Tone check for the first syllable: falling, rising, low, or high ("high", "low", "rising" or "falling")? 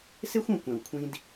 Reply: high